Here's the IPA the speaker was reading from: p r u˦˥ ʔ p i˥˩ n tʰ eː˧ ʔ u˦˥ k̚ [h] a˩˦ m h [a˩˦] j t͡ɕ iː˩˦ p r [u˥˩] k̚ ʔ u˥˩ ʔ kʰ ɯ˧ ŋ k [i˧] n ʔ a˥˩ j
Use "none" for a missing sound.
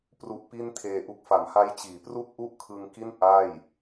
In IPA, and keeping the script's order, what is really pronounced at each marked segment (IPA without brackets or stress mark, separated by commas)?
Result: f, a˦˥, u˥˩, i˥˩